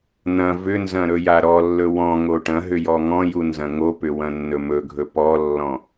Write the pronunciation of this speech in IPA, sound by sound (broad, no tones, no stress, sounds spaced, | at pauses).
n̪ ɐ̃ v ʏ n z ɐ̃ ɾ ɵ j a ɾ ɔ lː ɵ w ɔ̃ ŋ o ʈ ɐ̃ ɦ ʏ j ɔ ŋ ɔ̃ j u n z ɐ̃ ŋ o p ʏ w ɐ̃ nː ɵ m ɵ ɡʱ ɵ p ɔ lː ɔ̃